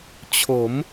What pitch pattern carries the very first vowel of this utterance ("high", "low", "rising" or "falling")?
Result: rising